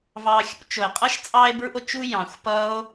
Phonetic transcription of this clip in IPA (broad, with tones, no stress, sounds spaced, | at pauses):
v ɑ˧ xʲ ṵ˧ t͡ʃ o˨ e̯ qʼ ʌ˦ ʃ t͡sʼ ɑ˧ e̯ b ɹ ṵ˧ o̯ t͡ʃ u˧ j ɑ̃˨ xʷ p ʌ˦ o̯